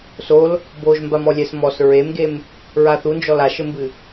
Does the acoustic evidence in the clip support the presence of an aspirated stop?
no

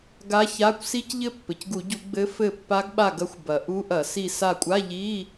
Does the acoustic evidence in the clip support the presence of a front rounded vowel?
no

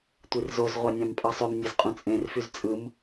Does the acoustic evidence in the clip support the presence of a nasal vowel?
yes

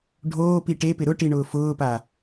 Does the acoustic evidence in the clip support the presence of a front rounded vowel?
no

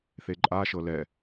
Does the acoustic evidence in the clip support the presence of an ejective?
yes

